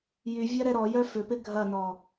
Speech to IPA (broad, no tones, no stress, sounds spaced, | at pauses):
j y vʲ a ɾ ɛ ɾ ɔ j œ f ʏ p ɪ ɡʱ ɐ n ɔ